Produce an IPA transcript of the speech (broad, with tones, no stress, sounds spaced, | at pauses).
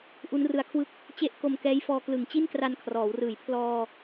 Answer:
ʔ u˦˥ n r ɯ˧ a̯ kʰ w ɯ˦˥ k̚ | t͡ɕ e˦˥ ʔ k o˧ m k ɛː˦˥ j f ɔː˧ k l ɯ˨˩ ŋ t͡ɕ i˥˩ n k r a˧ n kʰ r ɔː˩˦ w r ɯː˨˩ j pʰ l ɔː˧